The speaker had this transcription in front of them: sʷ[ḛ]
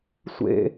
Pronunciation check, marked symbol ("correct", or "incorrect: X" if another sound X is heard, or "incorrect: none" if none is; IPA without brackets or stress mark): correct